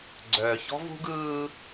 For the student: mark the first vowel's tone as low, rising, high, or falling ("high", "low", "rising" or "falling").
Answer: low